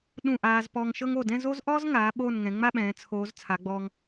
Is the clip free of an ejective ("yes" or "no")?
yes